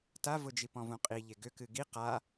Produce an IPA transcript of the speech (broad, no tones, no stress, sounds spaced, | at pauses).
t a v ʊ d͡ʒ i p ɔ̃ v ũ qʼ i ʎ e ɡ ʏ k ɨ ɡ i q a